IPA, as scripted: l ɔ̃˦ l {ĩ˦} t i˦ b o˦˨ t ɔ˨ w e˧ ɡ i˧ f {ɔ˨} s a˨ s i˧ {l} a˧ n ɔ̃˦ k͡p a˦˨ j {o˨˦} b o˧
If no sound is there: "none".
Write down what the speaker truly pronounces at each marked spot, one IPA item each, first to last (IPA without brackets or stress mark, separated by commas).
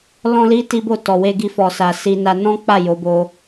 i˦, ɔ˨, n, o˨˦